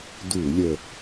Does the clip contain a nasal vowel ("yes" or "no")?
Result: no